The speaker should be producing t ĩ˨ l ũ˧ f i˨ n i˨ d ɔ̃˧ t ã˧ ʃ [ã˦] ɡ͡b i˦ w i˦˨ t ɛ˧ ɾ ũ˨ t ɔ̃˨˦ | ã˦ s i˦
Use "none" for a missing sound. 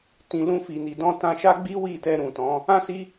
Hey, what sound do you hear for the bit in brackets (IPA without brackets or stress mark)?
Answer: a˦